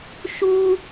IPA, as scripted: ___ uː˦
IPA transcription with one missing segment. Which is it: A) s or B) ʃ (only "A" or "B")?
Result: B